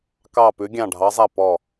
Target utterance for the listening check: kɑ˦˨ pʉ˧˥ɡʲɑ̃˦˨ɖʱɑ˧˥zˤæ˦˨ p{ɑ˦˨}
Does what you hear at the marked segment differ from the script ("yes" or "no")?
yes